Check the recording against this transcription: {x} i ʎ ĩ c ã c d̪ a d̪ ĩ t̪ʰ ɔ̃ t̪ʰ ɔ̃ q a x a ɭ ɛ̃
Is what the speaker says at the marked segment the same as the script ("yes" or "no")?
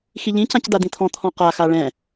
yes